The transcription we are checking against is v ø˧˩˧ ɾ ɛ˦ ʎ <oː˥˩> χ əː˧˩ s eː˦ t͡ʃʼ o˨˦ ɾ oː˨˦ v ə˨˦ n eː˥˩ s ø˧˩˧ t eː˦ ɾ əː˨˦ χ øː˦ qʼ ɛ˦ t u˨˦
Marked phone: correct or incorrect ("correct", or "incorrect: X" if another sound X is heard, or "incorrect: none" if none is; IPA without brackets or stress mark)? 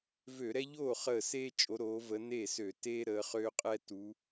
correct